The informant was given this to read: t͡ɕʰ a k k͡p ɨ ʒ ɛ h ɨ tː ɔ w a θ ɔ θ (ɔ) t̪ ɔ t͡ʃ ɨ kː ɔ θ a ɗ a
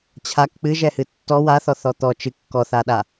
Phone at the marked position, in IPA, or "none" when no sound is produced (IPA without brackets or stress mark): ɔ